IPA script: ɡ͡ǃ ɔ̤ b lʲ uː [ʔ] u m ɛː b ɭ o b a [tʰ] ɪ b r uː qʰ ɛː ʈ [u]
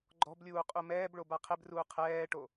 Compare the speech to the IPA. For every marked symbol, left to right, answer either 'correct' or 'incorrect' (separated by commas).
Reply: incorrect, incorrect, incorrect